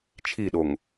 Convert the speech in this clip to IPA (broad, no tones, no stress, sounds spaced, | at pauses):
t͡ʃʰ i ɗ o ŋ